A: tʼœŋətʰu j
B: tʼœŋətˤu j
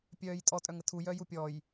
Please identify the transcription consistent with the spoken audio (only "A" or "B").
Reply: A